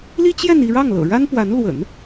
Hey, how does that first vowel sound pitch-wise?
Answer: high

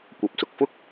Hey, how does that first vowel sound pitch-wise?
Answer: rising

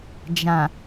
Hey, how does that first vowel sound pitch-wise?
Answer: low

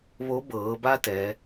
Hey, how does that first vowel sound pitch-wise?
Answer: rising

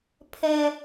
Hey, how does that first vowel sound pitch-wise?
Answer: high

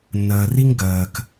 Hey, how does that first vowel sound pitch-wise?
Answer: low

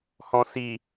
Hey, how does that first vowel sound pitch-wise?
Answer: low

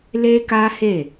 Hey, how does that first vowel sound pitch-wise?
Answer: high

